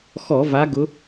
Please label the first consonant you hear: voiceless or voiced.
voiceless